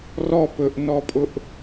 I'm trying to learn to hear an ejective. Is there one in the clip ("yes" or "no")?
yes